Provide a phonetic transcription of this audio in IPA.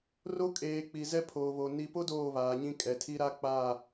r o˦ kʼ eː˨ k͡p i˨ z ɛ˦ pʰ oː˨ β o˨ n i˨ p o˦ d oː˦˨ β aː˨ ɲ ĩ˦ kʼ ɛ˨ tʰ i˦ ɾ a˦ k͡p aː˦˨

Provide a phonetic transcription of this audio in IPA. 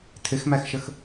tʰ ɪ x m æ x ʃ ə x

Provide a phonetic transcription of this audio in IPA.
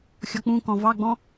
xʲ ɔ k͡p ũ k ɔ̃ v ɑ ɡ͡b ɔ̃

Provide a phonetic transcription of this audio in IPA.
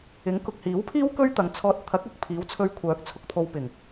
ɪ˨˥ ŋ k ʊ˨ k̚ h iː˨˥ w pʰ iː˥ w k ɵ˥ ɥ t̪ ɐ˨ ŋ t͡sʰ ɔː˧ t̚ t̪ʰ ɐ˨˥ k̚ ʊ˧ k̚ pʰ iː˨˥ w t͡sʰ ɵ˧ ɥ kʷʰ œː˨˥ k̚ t͡sʰ ʊ˧ k̚ t̪ʰ o˨ w p ɪ˨˩ ŋ

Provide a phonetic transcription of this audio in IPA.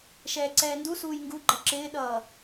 ʃ ɛː ǀ ɛː n d u s uː j ŋ ɡ u ɡ͡ǃ ʌ ǁ ɪː ɗ ʌː

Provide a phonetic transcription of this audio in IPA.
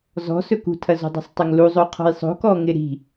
z ɔ̤ s ɵ k ṳ tʰ ɐ z o̤ dˤ i̤ sˤ tˤ ɵ ŋ l u zˤ o qʰ ɔ̤ j sˤ o̤ k ɔ ŋ ɪ ɾ i̤

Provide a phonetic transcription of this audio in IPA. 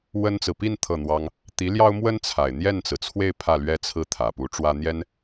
w ə˥ n t͡s ɹ̩˨ p i˥˧ n t̪ʰ ɤ˥˩ n̪ w ɑ˥ ŋ | t̪ i˧˥ l j ɑ˥ ʊ̯ m w ə˥ n t͡sʰ a˨˩ ɪ̯ n̪ j ɛ˥˩ n t͡s ɹ̩˩ t͡sʰ w e˥˧ ɪ̯ pʰ ä˥˩ l ɥ ɛ˥ t͡sʰ ɹ̩˥˩ t̪ʰ ä˨˩ p u˧˥ ʈ͡ʂ w ä˥ n̪ j ɛ˥ n

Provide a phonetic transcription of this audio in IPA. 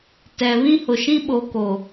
t ɛ˨ β ĩ˦ h ʊ˨ ʃ ĩ˦ ɓ o˨ k o˨

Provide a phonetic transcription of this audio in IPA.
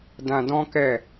d ã˧ d ɔ̃˦ k ɛ˦˨

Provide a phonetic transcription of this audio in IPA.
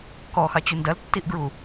k ɔ x ɑ t͡ɕ u n d ɐ l tː i ʔ ɡ ɹ u

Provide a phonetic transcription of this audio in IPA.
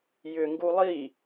j ʏ ŋ ɡ u lˠ i

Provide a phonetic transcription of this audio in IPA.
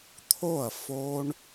t̪ʰ o˥˨ ɐ̯ f o˦ ɳ

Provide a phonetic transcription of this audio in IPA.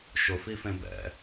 ʃ ʊ f i f ẽ b ɛ̰

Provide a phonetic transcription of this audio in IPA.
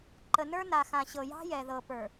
ǃ ə˨ n ə˞˦ n a˨ x ã˨ ɕ ɤ˨ j ɑ̤˦ j ɛ˨ ð ɤ˨ p ə˞˨

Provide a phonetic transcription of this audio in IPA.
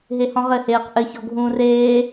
ɦ e h ɔ̃ ʁ ɘ h eː q ʔ ɘ ç ɔ ɡʱ ũː r eː

